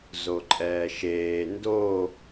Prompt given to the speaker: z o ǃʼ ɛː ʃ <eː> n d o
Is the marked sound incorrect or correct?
correct